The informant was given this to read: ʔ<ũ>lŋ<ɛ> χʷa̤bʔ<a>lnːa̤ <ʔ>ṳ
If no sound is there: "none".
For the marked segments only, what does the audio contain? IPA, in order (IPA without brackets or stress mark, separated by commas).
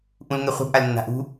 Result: ũ, ɛ, a, ʔ